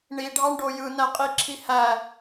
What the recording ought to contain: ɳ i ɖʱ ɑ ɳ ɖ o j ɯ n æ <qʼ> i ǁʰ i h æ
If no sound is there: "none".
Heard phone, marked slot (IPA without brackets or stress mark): qʼ